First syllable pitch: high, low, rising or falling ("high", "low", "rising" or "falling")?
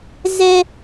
high